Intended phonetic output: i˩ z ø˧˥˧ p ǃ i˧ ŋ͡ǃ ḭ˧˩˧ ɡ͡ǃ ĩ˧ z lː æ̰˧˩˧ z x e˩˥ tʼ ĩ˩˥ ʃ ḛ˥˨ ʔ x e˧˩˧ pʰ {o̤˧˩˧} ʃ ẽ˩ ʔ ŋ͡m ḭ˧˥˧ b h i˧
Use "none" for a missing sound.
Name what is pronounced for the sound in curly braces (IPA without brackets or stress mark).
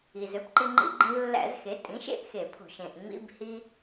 o̤˧˩˧